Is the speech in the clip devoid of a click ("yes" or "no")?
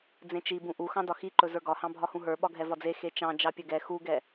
no